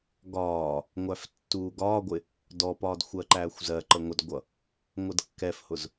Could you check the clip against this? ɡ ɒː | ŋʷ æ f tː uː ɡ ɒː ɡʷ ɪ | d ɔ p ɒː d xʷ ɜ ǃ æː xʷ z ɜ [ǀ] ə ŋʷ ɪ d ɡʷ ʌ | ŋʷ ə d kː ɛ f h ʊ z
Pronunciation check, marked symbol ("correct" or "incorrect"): incorrect